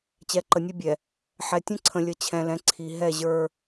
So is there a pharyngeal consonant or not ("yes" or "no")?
yes